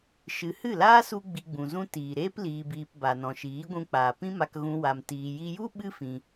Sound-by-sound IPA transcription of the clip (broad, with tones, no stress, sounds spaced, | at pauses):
ʃ ɨ˨˦ h ɨ˦˨ l aː˦ s u˧ ɡ͡b i˧ ɡ͡b ũ˨ z ũ˦ t iː˨ ɾ eː˦ p l iː˧ b iː˧ p b a˨ n ɔ̃˨ ʃ iː˨˦ ɡʷ ũ˧ k͡p aː˨ p ĩ˦ m a˧ k ɣ ũ˦ w a˧ m t iː˨ j i˧ j u˦ ɓ ɨ˦ f ĩ˧